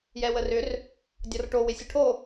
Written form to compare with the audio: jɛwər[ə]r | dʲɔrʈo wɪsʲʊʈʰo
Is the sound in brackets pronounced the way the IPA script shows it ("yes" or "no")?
no